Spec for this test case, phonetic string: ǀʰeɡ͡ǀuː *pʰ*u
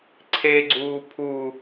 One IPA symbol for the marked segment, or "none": pʰ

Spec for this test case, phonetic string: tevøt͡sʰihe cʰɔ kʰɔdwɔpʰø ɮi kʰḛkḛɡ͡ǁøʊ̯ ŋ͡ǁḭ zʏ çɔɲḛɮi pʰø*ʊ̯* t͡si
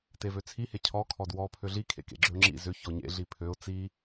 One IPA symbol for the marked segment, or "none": ʊ̯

